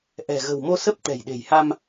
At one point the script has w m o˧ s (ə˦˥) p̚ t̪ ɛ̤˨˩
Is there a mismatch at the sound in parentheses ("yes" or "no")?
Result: no